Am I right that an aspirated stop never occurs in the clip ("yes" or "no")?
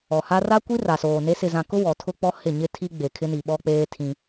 no